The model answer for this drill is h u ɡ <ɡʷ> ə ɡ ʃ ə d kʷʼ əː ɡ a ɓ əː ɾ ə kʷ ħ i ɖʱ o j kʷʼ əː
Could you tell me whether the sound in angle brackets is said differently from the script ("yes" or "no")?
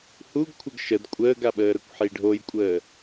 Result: yes